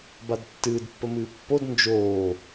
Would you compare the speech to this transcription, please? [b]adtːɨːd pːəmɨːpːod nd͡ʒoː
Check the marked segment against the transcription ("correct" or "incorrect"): correct